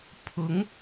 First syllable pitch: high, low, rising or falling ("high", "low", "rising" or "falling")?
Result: rising